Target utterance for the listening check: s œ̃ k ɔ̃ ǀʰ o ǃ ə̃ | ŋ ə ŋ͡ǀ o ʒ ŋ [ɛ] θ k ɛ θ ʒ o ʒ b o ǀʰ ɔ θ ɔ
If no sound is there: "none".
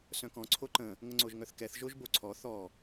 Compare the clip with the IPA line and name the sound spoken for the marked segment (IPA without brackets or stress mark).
œ